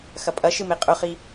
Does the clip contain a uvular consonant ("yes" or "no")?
yes